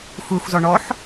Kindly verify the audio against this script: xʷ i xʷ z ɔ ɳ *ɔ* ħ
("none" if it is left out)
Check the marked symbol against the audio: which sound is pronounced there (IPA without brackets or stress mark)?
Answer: ɔ